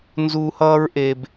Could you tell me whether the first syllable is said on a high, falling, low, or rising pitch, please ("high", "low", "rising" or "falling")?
high